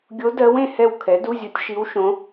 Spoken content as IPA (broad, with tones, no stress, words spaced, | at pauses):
ɡʲo˧˥dɜ˧˥wẽ˦˨hɛ˦˨w kʰɛ˩˥du˧˥˧zʲo˧˥tʲ ʃi˧˥wʃõ˧˥